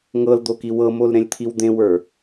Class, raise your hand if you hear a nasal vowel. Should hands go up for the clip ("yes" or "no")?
yes